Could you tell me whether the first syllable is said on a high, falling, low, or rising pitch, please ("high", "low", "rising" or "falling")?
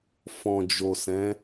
low